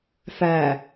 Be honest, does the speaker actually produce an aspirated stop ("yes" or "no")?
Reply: no